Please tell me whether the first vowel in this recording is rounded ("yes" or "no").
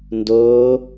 yes